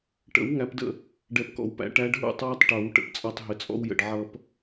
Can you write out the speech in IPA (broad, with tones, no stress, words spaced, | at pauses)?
ʈə̰˨˩˦w ŋæ˨˦pdə̰˥˨ | ɖɛ˨˩˦pkɔ̰˨wpæ̰˨˦ ʈæ˨˦ɖɦṵ˥˨tˤwʌ˥˨tˤ ʈʌ˨˩˦w ʈə̰˦pt͡sʼɑ˦tˤɦɪ˨˦ t͡sʼɔ̰˦wjə̰˨ɖ ʕʌ˦p